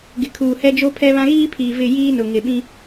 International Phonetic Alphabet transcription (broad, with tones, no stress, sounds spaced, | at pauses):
ɡ ɪ˨ kʰ uː˨ h ɛ˦ d͡ʒ o˦ pʰ ɛ˦ β ã˦ ɣ iː˦ pʰ iː˨ v ɪ˦˨ j iː˦ n ʊ˨ ŋ ɪ˨ ɓ ĩ˦